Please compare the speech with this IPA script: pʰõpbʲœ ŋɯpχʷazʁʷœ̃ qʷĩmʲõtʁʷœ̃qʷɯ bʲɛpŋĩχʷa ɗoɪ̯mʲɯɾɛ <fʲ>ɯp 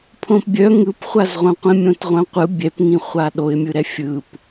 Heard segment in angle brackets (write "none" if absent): fʲ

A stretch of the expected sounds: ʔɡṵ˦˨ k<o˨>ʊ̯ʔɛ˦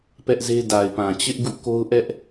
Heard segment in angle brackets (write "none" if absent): o˦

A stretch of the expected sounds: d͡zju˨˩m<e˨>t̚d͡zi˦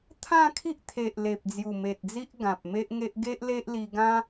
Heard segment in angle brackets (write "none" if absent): e˨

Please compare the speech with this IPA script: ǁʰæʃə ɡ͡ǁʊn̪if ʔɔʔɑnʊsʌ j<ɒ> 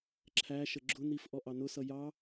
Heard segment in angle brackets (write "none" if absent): ɑ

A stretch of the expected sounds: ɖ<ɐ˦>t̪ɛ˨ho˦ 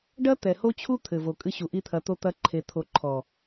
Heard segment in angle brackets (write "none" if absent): ɐ˦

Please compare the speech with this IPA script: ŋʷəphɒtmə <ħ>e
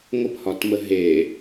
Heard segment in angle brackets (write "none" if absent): ɦ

